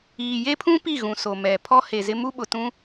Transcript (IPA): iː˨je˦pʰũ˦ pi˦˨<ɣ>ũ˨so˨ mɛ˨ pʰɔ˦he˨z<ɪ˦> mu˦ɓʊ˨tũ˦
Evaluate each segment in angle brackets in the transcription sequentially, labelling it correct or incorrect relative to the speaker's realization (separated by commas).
correct, correct